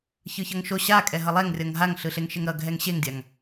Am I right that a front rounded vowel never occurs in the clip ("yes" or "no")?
yes